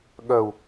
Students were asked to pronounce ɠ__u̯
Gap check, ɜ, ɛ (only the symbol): ɜ